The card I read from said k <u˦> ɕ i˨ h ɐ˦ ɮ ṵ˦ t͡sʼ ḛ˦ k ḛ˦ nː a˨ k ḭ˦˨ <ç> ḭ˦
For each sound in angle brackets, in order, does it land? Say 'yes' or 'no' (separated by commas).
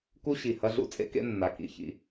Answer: yes, yes